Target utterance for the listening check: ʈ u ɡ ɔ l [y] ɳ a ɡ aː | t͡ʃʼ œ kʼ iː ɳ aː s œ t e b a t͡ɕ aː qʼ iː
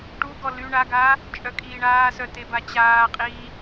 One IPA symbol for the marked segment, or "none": y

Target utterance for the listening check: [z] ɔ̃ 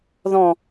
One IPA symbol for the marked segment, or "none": ð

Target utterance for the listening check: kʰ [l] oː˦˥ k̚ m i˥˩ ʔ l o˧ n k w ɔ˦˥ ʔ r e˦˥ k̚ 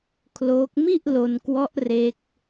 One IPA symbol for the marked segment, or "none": l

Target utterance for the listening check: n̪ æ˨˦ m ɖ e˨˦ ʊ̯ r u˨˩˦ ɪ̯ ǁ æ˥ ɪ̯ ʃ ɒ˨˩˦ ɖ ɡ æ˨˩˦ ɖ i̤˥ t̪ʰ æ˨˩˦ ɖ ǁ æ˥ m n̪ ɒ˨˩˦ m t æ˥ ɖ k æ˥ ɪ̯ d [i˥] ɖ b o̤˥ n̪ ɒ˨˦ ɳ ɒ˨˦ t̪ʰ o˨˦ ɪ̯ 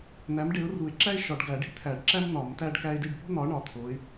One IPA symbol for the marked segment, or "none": i˥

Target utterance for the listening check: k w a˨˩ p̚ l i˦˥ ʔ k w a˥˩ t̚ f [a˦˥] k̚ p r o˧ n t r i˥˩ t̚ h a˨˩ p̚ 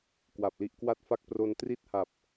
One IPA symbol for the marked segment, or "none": a˦˥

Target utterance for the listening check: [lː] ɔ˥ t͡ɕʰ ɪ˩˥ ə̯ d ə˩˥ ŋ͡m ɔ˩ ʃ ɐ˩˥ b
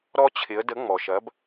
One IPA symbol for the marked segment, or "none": ɾ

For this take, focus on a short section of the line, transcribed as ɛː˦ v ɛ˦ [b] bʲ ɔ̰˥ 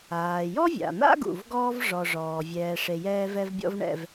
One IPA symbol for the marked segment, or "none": v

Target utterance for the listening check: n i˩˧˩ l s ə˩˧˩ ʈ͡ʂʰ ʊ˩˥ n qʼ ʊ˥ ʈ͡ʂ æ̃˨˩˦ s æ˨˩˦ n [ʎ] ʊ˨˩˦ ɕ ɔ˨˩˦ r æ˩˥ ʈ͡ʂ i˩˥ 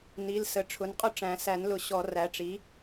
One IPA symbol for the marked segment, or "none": l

